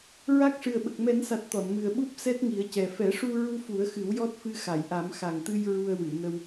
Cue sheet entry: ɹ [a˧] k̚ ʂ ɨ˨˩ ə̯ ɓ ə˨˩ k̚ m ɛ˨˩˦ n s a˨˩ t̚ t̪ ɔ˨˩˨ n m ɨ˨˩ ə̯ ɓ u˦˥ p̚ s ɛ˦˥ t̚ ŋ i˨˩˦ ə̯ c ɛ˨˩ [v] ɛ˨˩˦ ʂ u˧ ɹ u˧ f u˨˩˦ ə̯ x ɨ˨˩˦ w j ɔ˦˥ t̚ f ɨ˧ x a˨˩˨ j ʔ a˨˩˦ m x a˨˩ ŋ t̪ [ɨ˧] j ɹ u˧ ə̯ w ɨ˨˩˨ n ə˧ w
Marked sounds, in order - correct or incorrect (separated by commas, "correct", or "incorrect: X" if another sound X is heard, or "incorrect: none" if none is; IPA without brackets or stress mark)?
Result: incorrect: a˦˥, incorrect: f, correct